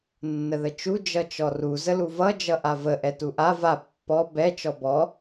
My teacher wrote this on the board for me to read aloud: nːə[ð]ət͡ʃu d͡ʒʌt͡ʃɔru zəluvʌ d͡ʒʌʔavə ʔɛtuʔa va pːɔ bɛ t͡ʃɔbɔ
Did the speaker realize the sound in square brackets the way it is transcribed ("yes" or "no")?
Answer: yes